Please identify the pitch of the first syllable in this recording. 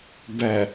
low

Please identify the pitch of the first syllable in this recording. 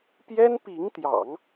high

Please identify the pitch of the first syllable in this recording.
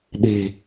low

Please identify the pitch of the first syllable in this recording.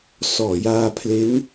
low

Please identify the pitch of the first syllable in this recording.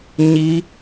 rising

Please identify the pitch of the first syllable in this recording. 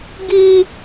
high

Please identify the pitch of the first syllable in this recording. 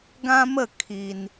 high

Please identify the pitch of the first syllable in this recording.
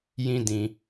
high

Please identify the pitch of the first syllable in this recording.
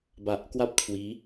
low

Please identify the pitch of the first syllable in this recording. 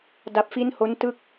low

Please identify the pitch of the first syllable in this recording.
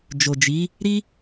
low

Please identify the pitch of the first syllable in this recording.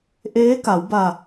rising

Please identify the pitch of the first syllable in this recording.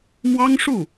high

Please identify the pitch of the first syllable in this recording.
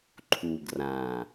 low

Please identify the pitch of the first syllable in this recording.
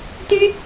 high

